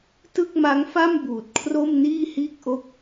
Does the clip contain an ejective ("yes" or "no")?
no